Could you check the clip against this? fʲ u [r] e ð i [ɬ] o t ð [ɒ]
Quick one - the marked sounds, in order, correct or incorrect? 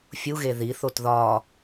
incorrect, incorrect, correct

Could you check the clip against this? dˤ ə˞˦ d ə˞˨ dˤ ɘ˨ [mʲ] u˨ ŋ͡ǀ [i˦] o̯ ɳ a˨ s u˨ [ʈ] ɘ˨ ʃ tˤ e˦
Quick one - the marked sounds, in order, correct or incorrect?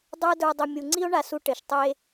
correct, correct, correct

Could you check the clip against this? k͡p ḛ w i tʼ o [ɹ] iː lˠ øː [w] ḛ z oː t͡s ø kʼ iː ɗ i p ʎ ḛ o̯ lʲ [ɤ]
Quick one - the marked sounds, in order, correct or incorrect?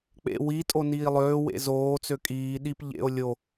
incorrect, correct, incorrect

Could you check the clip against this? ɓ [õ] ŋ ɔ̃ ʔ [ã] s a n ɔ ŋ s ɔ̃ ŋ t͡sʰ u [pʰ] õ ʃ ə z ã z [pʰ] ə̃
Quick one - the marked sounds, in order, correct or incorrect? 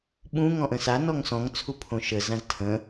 incorrect, incorrect, correct, incorrect

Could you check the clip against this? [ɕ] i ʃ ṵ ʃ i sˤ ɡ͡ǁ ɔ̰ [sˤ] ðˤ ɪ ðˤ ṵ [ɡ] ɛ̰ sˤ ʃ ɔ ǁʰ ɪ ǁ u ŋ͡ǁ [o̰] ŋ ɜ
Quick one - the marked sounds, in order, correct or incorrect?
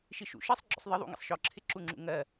incorrect, correct, incorrect, incorrect

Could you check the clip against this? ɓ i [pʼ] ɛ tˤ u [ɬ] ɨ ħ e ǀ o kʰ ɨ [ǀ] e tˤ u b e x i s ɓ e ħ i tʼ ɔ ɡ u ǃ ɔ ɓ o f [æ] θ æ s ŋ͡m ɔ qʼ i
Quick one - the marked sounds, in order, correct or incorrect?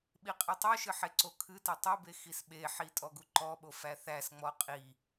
incorrect, incorrect, incorrect, correct

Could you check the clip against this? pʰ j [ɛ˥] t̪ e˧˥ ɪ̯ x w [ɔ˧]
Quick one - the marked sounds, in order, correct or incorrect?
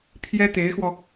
correct, correct

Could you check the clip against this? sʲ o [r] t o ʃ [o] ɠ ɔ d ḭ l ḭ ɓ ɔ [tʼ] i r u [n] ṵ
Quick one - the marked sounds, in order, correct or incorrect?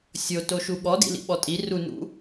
incorrect, incorrect, correct, correct

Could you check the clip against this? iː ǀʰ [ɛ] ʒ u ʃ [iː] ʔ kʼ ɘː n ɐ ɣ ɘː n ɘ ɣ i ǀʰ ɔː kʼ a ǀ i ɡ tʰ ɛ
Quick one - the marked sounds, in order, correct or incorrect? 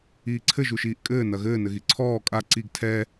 incorrect, correct

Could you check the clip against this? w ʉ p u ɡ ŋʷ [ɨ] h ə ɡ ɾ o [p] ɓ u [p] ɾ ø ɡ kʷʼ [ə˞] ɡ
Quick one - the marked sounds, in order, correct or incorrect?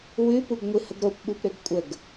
correct, correct, correct, incorrect

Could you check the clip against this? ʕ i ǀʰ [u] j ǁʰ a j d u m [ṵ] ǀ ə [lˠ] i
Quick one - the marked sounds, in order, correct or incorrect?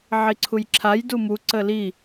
correct, incorrect, incorrect

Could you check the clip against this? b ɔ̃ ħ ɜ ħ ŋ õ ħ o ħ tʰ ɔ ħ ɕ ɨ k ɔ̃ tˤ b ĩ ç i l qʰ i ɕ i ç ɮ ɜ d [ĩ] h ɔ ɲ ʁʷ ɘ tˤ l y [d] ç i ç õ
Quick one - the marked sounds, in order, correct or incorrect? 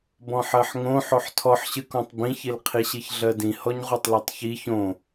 correct, incorrect

